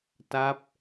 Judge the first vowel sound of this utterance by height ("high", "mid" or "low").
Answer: low